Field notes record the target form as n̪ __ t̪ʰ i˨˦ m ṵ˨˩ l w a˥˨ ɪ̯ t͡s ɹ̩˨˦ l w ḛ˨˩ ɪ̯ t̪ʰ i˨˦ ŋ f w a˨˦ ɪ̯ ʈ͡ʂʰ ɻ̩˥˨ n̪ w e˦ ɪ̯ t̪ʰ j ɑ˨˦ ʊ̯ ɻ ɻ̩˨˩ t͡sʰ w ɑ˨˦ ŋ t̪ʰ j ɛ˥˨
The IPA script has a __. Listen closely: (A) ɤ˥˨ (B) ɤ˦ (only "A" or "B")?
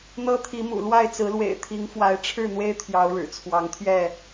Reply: B